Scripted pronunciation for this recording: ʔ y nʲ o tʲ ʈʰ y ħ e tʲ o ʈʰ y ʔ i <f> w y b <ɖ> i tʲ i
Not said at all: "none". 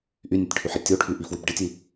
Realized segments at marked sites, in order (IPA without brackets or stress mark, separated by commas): f, ɖ